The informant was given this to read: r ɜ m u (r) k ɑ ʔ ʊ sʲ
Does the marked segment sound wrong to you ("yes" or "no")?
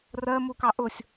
yes